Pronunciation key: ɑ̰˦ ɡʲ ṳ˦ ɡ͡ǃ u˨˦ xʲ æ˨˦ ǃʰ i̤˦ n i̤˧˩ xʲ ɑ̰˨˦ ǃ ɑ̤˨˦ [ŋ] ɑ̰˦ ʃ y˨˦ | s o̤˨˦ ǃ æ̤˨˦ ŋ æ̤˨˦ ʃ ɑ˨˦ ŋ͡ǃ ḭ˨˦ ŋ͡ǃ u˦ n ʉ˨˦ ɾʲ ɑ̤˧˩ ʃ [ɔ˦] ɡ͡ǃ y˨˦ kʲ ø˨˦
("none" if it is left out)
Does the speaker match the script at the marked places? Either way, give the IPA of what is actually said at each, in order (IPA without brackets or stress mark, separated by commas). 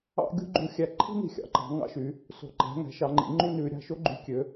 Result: ŋ, o˦